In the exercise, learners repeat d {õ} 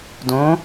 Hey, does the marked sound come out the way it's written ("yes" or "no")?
yes